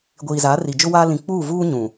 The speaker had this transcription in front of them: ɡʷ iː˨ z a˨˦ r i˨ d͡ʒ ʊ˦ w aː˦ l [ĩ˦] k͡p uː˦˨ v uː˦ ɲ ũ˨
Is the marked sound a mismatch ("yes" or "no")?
yes